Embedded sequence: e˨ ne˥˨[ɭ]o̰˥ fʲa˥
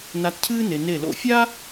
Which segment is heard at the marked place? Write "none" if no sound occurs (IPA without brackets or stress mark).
l